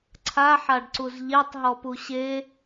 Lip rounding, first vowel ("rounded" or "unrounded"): unrounded